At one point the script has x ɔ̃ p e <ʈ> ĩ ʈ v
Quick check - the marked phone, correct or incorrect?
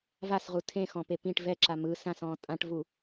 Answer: incorrect